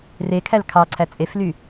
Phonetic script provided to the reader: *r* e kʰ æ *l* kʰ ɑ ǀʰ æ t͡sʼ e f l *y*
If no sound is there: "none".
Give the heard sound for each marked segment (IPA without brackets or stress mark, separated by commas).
r, l, y